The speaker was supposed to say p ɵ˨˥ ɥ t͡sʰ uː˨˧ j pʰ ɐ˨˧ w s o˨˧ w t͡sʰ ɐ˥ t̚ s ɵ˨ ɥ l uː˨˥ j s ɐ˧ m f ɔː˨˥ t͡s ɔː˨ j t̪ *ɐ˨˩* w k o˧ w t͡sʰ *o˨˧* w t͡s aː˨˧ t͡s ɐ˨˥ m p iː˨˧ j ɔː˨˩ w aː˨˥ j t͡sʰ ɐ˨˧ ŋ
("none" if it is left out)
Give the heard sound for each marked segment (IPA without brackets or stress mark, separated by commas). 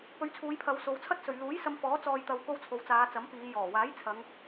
ɐ˨, o˨˧